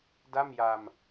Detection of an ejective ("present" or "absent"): absent